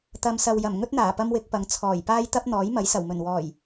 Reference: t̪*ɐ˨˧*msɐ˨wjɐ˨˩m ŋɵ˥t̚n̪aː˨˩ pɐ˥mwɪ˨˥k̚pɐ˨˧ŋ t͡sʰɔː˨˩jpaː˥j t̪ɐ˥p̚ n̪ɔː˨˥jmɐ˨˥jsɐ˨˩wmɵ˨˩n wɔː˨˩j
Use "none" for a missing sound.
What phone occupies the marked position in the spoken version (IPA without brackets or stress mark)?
ɐ˨˧